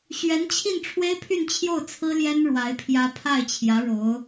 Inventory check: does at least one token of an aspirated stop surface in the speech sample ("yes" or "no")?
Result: yes